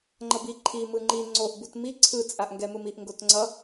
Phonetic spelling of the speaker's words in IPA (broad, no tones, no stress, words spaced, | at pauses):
ŋ͡ǃʌbi ǃʰi mɯŋ͡ǃi ŋ͡ǀoʔ butmi ǀʰɯ t͡sʼaʔŋɡɛmɯmiʔ ŋɡotŋ͡ǀʌ